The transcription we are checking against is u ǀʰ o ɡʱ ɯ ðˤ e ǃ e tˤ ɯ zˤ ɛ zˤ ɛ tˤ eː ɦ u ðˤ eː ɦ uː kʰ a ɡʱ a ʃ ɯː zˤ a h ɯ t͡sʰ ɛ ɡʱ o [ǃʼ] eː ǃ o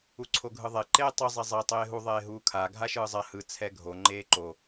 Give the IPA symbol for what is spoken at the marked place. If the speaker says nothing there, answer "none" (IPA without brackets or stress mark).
ŋ͡ǃ